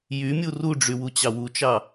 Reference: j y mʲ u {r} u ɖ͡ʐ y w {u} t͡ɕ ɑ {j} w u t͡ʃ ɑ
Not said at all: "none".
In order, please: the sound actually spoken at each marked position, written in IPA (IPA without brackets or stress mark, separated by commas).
r, u, none